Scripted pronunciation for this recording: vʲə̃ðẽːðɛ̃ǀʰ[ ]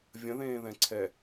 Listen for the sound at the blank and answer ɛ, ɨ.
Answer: ɛ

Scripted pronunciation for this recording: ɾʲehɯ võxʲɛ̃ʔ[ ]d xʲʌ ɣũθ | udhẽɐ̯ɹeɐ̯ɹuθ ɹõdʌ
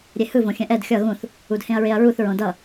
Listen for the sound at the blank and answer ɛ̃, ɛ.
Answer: ɛ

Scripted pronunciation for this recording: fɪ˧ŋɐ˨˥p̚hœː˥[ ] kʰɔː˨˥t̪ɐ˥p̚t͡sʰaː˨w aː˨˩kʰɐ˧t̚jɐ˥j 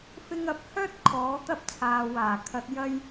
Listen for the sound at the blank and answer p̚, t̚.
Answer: t̚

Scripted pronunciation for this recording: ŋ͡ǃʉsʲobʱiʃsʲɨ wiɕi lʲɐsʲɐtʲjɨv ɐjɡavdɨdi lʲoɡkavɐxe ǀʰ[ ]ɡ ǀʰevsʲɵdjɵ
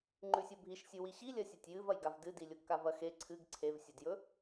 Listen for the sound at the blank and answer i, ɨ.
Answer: ɨ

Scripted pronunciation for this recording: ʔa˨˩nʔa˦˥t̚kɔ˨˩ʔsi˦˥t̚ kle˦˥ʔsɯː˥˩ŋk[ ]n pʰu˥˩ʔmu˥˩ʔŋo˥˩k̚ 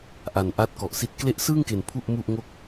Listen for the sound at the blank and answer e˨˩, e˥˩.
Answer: e˨˩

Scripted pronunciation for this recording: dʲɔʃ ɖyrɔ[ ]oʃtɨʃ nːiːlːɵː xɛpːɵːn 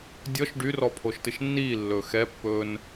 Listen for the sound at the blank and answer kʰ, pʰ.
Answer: pʰ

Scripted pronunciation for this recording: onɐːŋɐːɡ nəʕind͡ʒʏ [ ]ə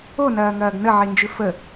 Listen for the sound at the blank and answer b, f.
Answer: f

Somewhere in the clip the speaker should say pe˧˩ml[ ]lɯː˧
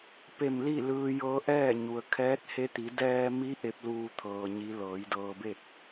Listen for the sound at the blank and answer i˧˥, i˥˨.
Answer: i˥˨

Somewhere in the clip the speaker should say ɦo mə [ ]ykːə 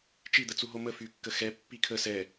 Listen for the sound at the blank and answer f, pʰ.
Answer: f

